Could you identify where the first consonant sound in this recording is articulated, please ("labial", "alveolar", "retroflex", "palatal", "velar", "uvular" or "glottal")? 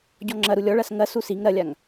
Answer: palatal